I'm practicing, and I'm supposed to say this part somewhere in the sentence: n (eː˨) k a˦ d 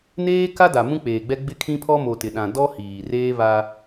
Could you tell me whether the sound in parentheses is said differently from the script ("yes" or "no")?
yes